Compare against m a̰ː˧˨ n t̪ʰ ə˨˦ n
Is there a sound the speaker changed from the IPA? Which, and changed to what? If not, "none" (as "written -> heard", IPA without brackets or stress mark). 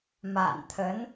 none